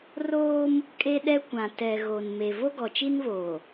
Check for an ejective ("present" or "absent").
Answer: present